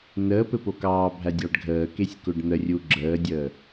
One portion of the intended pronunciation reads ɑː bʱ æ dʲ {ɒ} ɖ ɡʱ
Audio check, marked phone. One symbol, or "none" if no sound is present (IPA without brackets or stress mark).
ɑ